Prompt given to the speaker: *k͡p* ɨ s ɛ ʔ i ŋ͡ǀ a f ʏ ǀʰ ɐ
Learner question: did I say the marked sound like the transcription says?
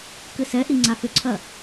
no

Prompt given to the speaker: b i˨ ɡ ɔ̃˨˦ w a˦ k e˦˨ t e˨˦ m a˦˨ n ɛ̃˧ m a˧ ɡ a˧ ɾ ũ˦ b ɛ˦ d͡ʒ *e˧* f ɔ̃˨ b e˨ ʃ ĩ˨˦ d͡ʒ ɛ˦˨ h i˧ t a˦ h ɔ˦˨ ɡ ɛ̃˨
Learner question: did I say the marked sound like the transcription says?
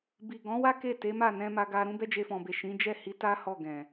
yes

